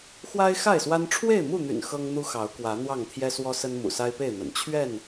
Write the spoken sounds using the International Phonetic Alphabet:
x w a˦ ɪ̯ x a˥˨ ɪ̯ s w a˦ n ʈ͡ʂʰ w e˥˨ ɪ̯ m u˥˨ n̪ y̰˨˩ n x ɤ˦ ŋ n̪ u˦ x ɑ˨˦ ʊ̯ k w ä˨˦ n̪ w ɑ˥˨ ŋ t̪ʰ j ɛ˦ s w ɔ˦ s ə˦ n m ṵ˨˩ s a˦ ɪ̯ p e˥˨ ɪ̯ n̪ ə̰˨˩ n t͡ɕʰ ɥ ɛ˥˨ n

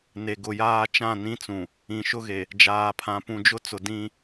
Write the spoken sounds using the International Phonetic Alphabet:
n e˨ ɡ ʊ˨ j aː˦ t͡ʃ ã˦˨ n ĩ˦ t͡s ũ˨ | ĩ˨ ʃ ʊ˦ ɣ e˨ | d͡ʒ aː˨ pʰ ã˨ p ũ˨ d͡ʒ ʊ˦ t͡s ʊ˨ d ĩ˦

